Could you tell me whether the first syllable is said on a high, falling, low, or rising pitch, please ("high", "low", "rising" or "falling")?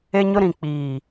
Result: high